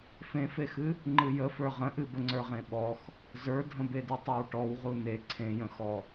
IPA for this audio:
fẽfexɨ | ŋ͡ǃɨjə fə˞ʁə̃ʔɨ bəŋ͡ǀə˞ʁẽɓɔx | zə˞dʱə̃bedɨ tˤə˞wʈɔw ʁune ǀʰẽjə̃xɔ

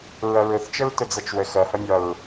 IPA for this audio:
ɹʌɹʊθt͡ʃəɹ tʊd͡zʌt͡ʃwə xʌhʌmʲɒɹ

